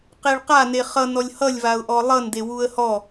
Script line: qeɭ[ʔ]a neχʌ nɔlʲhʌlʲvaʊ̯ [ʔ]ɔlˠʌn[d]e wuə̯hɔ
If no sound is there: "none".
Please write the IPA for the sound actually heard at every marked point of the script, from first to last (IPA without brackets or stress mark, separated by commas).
q, ʔ, d